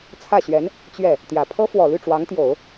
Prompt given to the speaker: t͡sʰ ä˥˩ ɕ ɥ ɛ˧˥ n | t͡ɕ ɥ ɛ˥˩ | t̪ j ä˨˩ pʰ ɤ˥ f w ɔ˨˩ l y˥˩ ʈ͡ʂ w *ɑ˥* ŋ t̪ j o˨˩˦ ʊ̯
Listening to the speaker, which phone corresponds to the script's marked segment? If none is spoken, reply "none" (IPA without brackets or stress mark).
ɑ˧˥